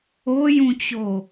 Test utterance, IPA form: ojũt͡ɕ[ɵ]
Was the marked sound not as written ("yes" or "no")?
yes